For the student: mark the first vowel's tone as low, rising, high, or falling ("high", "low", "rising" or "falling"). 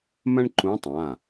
high